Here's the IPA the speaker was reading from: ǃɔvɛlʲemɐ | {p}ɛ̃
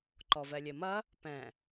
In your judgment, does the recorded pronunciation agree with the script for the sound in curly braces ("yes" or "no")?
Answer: yes